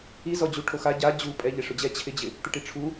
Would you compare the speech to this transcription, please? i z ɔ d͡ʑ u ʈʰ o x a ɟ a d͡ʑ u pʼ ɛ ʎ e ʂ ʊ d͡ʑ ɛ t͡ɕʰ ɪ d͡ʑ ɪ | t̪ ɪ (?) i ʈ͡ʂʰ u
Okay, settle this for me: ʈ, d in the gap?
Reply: ʈ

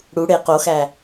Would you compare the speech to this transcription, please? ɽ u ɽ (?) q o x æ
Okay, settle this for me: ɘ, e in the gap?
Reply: e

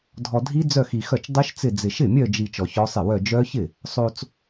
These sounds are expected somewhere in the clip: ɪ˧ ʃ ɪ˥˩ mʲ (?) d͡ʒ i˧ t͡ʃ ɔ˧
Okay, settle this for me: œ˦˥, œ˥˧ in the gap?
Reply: œ˥˧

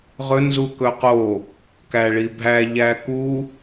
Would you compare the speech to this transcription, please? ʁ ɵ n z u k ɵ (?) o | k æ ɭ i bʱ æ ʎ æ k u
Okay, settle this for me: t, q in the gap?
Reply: q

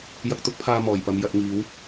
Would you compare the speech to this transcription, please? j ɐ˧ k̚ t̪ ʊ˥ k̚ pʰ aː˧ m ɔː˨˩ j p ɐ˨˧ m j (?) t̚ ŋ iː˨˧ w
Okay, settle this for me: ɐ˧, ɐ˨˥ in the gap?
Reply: ɐ˧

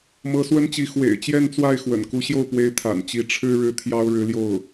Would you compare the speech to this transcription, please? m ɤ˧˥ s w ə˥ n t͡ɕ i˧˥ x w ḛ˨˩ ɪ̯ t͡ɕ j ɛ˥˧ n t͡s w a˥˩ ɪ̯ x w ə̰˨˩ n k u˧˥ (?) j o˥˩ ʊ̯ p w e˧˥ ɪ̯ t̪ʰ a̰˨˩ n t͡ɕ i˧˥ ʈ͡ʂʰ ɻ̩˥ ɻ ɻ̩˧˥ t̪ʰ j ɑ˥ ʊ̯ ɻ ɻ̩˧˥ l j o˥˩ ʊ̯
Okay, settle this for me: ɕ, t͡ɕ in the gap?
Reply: ɕ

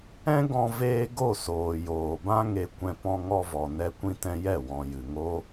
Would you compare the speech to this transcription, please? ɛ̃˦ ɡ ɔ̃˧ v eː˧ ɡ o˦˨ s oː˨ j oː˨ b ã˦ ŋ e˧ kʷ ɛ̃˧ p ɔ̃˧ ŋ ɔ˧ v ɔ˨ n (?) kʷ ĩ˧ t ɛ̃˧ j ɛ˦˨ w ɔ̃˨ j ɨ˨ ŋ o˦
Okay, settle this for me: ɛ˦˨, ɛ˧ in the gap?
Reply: ɛ˧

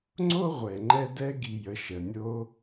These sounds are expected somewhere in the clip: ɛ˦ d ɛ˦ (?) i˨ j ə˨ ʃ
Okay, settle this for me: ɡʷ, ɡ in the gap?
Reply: ɡ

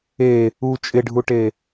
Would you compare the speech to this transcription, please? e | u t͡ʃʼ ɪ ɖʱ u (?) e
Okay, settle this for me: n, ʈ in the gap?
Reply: ʈ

